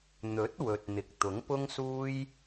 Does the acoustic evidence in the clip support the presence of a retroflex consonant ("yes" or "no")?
no